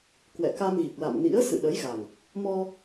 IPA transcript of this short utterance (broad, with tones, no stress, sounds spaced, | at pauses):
k w ɛ̰˧˨ k a˧ m ɣ i˨˩ k̚ l a̰˧˨ m n ḭ˧˥ ə̯ s ɨ̰˧˨ ɗ ə˨˦ j ɣ a˨˩ ŋ | m ɔ˧